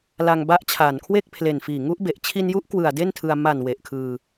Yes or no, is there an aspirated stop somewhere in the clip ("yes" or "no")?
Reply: yes